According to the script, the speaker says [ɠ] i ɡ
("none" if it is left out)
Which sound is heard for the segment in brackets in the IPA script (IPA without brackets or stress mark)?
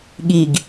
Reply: ɠ